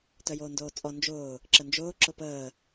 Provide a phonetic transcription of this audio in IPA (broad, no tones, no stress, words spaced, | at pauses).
tœjoːndoːt͡sʼɔ nd͡ʒʊː | ǁənd͡ʒʊː ǁʊpəː